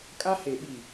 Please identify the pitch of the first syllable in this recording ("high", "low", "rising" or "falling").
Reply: high